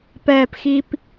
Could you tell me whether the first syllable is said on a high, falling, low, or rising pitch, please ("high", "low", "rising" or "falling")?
low